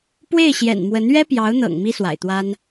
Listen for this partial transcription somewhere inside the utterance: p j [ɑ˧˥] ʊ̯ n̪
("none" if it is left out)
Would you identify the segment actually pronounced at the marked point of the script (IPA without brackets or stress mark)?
ɑ˧˥